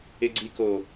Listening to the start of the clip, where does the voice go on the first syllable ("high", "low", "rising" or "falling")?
low